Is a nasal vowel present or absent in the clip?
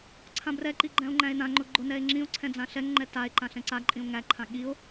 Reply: present